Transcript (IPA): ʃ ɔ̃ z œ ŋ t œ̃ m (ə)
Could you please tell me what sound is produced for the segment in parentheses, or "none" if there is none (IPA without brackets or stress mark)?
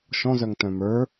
ə˞